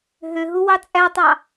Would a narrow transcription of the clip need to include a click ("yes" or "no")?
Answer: no